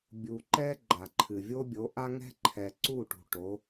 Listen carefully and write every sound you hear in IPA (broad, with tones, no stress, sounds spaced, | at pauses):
bʲ u˨ ǃ ɛ˦ ɡ͡ǃ a˨ ǃʰ ɨ˨ vʲ o˦ bʲ o˨˦ ʔ a˦ ŋ ɛ̤˦ ǃʰ ɛ˨ ǀ u˦˨ ʈ ṳ˨ ʈ o˨˦